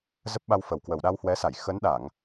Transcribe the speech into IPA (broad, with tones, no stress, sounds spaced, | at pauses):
z ə˦˥ p̚ ɓ a˧ w f ə˨˩ w k w ə˨˩ w ɗ a˧ w h w ɛ˨˦ s a˧˩ j x ə˨˦ n ɗ a˧˩˨ ŋ